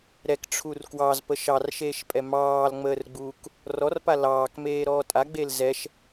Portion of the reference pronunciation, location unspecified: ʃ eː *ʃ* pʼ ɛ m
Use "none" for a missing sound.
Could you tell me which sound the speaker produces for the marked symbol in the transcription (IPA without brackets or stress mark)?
ʃ